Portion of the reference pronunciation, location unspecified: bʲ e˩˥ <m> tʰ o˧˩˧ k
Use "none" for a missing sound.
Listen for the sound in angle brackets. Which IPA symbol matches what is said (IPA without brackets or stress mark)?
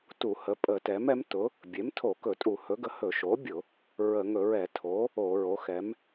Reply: m